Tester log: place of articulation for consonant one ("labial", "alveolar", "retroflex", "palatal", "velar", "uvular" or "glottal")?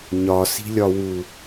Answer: palatal